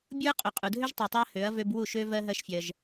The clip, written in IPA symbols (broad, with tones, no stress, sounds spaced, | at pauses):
bʲ u˦ ɐ̯ qʼ ø˨ qʼ u˨ dʱ ø˦ ʒ tˤ y˨ tˤ y˧ ɐ̯ h ø˨˦ ɐ̯ v ø˧ b w u˦˨ ʃ ø˧ v ɜ˦ ɦ ɜ˦ ʃ fʲ ɜ˧ ʒ